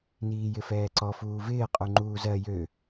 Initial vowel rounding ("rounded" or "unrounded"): unrounded